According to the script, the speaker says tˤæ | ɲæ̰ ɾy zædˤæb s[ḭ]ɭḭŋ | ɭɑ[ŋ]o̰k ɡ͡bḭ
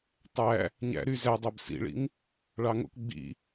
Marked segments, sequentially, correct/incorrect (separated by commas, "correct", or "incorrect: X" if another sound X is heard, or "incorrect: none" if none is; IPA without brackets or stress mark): correct, correct